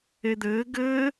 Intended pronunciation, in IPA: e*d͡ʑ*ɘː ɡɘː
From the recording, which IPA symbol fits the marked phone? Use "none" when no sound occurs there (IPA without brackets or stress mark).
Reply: d̪